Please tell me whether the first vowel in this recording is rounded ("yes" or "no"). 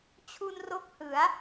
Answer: yes